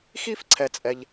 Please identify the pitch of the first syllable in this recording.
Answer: high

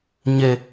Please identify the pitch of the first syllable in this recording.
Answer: low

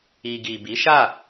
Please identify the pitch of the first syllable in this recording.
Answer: low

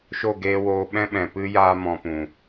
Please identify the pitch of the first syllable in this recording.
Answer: falling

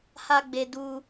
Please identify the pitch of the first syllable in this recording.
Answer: high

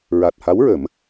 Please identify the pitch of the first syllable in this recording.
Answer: low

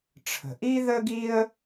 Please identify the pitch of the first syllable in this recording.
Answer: low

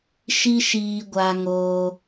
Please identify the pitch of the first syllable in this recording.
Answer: high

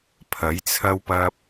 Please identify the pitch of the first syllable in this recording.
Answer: rising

